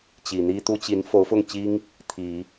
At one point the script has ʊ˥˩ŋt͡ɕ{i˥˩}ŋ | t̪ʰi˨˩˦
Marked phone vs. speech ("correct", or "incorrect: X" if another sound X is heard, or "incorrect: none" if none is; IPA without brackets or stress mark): incorrect: i˥